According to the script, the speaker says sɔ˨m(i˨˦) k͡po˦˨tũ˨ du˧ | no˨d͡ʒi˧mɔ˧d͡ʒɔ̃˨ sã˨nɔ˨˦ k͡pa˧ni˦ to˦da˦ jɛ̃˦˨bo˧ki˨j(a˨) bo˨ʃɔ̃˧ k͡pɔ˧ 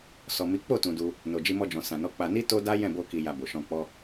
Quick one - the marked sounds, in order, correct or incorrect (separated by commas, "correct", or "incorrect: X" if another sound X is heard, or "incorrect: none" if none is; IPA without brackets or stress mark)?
correct, correct